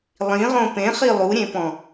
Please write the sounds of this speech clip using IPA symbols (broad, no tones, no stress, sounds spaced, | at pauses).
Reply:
lˠ ĩ ʁ õ p ẽ χ i lˠ u ɾʲ ẽ p ɔ̃